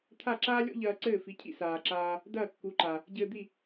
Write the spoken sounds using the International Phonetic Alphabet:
t̪ʰ a˥˩ ǁ aː˥ lʲ ɔ̰˥ ʎ ɐː˧ ǀ ɘː˥˩ f i˩˥ cʰ ḭ˧ s aː˩ ǁ aː˧ | d ɐː˥˩ kː u˩˥ ǃ a˩ | ɟ ɘː˧ d̪ i˥˩

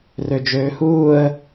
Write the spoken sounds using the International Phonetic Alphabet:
r ø d͡ʒ øː h uː ə̯

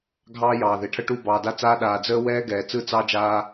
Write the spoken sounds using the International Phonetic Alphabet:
ɡʱ ɑː˦ j ɑː˨ ð e˨ ʈʰ ə˦ ʈ u˦˨ b ɑː˨ d a˦ t͡s aː˦ ɗ aː˨ d͡z əː˦ w ɛː˦ ɡ ɛː˨ t͡s ɯ˦ t͡s ɑ˦ d͡ʒ aː˦

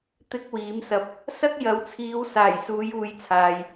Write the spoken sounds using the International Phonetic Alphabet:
t̪ ɪ˥ k̚ w iː˨˥ m s ɐ˧ p̚ | s ɐ˥ k̚ j ɐ˨˧ w t͡sʰ iː˨˧ w s aː˨˩ j s uː˨˧ j uː˨˧ j t͡sʰ aː˨ j

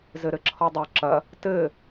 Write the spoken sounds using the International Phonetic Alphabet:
z ɘ ɾ ɘ ǁʰ ɔ dˤ o ǁ ɐ | t ɘ

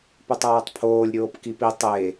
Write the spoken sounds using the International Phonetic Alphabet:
p ɵ tˤ aː tˤ pʰ oː lʲ ɾʲ oː p k i p i tˤ e

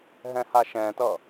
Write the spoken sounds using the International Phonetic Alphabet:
ɦ ɛ̃ h a ʃ ɛ̃ t ʌ

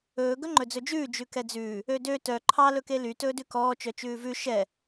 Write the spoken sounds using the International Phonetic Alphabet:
ɵː ɡ ɵ ŋ͡ǃ ɵ d͡z ɵ d͡ʒ ʉː d͡ʒ ʉ k ɛ d͡z ʉː | ø d ø t œ ǃʰ ɑ l ɵ k e l y t ɵː d ʉ k ɔː t͡ʃ œ t͡ʃ ʉː v ʉ ʃ ɛ

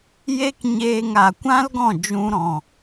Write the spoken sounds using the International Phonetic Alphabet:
j e˦ k ɲ eː˧ ŋ a˨ kʷ ã˦ l ɡ ɔ̃˦˨ d͡ʒ ũ˧ ɾ ɔ̃˨

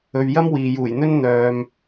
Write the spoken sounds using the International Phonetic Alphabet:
ɵ˨ ɥ j ɐ˥ m w iː˨ j uː˨˩ j n̪ ɵ˥ n n̪ œː˨ m

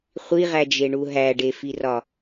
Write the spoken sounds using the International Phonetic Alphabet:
χʷ i ʁ æ d͡ʒ e ɳ u ɦ æ ɖ e f i r ɒ

